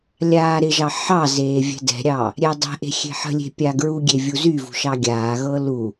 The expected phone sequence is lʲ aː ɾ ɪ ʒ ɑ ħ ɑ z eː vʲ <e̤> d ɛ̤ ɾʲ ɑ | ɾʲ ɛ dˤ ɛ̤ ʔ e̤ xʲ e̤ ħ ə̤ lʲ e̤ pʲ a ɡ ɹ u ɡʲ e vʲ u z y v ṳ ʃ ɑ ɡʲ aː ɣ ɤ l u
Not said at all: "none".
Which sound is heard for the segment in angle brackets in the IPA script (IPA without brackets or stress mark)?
ɛ̤